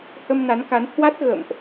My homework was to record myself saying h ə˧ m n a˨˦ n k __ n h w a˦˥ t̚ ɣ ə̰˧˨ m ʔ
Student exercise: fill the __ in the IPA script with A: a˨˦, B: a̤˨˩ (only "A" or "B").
A